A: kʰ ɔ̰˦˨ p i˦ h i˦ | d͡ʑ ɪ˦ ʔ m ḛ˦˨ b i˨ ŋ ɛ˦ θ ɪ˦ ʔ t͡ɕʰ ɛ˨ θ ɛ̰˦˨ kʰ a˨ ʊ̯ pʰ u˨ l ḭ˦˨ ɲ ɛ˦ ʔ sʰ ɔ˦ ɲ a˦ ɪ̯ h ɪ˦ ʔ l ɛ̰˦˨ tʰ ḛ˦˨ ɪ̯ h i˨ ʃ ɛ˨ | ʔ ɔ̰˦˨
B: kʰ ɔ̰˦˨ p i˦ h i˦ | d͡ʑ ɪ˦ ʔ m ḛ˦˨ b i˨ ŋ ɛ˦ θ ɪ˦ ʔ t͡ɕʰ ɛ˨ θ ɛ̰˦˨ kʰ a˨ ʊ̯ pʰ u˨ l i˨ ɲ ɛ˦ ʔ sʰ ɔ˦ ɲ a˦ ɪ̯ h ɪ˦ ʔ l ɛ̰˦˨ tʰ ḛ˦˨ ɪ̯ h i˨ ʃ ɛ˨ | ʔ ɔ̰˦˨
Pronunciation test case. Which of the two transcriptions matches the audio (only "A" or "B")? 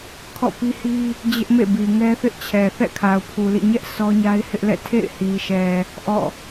A